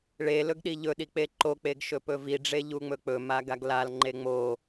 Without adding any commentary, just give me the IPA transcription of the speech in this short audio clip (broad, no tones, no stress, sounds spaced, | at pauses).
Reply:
ɭ e l ɵ ɡ ɗ i ʎ ɵ ɗ i k͡p e ǃ o k͡p e ɡ ʃ ɵ p ɵ v i ɖ͡ʐ e ʎ u ŋ͡m ɵ k͡p ɵ m a ɡ a ɡ l a l ŋ͡ǃ e ŋ͡m o